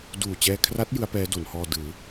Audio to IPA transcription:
duː˨˩t͡ɕɛː˧kʰra˦˥t̚ jɯ˦˥a̯pɛː˦˥do˩˦nhɔː˧ dɯː˩˦

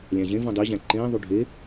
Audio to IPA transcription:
lʲæ̃ʑẽvũ dˤiʑæ̃ ǃẽːðˤu ɖʱe

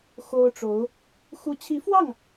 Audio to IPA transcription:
xo˥ʊ̯ʈ͡ʂo˧˥ʊ̯ | xu˧˥t͡ɕʰi˧˥fwɑ˥˩ŋ

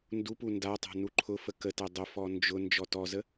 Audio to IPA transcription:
ndupu ndatˤa̤ nuǃʰʊfə kətɛ dˤʊfɔ nd͡ʒʊ nd͡ʒɔtɔzə

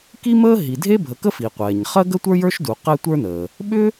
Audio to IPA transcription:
ki˥məː˥ɦi˩ dʱe˥bʱə˩kə˥ fi˩qʷɛː˩ɲχɜ˥ɡə˥ tʷə˞˥jə˞˥ʃdu˩ qɛ˥tʷə˞˥nəː˩ | ɓʏ˥

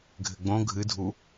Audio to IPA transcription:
ɡʱɘɡ͡bõ ɡʱɨdʱu

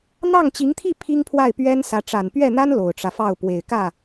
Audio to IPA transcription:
n̪ɑ˥˩ŋt͡ɕi˧˥ŋt̪ʰi˥˩ pʰi˥ŋpʰwa˥˩ɪ̯pɥɛ˥n sä˧˥ ʈ͡ʂa˨˩npɥɛ˥˩n̪a˥n lo˨˩ʊ̯ʈ͡ʂä˦fɑ˥˩ʊ̯ pwe˨˩ɪ̯ kä˥˩

